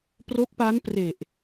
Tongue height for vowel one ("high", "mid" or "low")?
mid